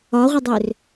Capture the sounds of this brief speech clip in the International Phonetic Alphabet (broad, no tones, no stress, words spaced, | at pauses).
ɒʁʷədˤør